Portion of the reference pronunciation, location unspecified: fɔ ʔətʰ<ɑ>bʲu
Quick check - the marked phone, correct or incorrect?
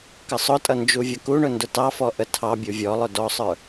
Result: correct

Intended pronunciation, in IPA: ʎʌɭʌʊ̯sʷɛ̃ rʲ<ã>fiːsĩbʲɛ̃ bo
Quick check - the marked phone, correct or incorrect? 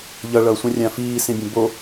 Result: correct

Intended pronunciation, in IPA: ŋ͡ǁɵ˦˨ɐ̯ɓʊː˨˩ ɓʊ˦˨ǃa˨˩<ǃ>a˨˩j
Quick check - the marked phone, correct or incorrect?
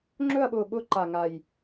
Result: incorrect: ŋ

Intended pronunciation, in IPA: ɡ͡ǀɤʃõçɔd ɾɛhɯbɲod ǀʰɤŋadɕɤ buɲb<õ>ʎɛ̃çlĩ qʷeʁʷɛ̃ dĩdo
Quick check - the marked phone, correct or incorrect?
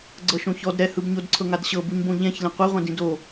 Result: correct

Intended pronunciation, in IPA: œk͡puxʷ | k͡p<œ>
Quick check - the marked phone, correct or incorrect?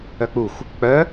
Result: correct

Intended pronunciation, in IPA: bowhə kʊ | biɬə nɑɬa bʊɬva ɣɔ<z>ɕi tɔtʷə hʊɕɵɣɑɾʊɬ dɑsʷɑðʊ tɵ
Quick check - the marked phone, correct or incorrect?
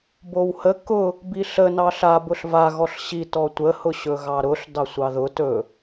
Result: incorrect: ɬ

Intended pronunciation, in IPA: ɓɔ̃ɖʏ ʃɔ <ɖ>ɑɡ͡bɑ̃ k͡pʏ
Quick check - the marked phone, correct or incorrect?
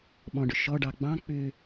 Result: correct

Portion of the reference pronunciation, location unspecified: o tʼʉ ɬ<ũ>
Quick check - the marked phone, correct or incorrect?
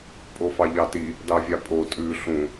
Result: correct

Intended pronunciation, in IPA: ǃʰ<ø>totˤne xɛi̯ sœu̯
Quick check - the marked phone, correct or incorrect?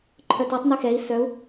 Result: incorrect: œ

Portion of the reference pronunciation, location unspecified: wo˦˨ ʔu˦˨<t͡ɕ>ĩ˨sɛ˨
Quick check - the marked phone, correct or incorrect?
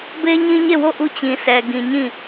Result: correct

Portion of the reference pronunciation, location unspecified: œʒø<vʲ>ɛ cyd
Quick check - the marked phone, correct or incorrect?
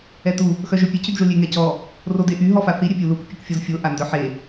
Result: incorrect: pʲ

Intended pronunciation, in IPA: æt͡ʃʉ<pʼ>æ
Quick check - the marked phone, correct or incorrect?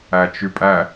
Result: correct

